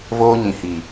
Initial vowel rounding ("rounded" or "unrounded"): rounded